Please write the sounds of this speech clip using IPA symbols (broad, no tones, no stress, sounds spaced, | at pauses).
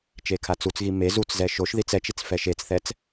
t͡ʃ e kʰ a t͡s u t͡s ɣ i m e z u t͡s z ɛ ʃ o ʃ ð i t͡s ɛ t͡ʃ i t͡s f ɛ ʃ e t͡s θ ɛ t͡s